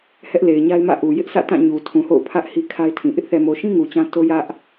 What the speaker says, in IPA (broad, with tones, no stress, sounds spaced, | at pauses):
h ɛ˦ ʔ l e˨ ɪ̯ ɲ a˦ ɪ̯ m ä̰˦˨ ʔ u˨ j ɪ˦ ʔ sʰ ä̰˦˨ t ã˦˨ ɲ u˨ tʰ ũ˨ h o̰˦˨ ʊ̯ pʰ ä˦ ʔ h i˦ kʰ a˦ ɪ̯ tʰ ĩ˨ ʔ ɪ˦ ʔ θ ɛ˨ m o˨ ʃ ĩ˦ ŋ u˨ t͡ɕ ã˦ t o˦ j ä˦ ʔ